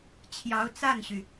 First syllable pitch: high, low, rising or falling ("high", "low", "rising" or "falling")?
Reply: rising